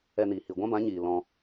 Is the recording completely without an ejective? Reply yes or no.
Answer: yes